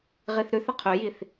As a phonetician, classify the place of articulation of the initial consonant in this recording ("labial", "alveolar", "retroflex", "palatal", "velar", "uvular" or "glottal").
uvular